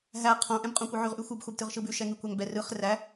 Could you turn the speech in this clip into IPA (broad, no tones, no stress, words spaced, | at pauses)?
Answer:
ɦæ qʰõ ʔɛ̃bqʼõkʷɯʕʉʁ ʔʉxʷɯb xʷæbtɯʁʃɯbʉ ʃɛŋʉkʷæŋbɛ rɯχ ræ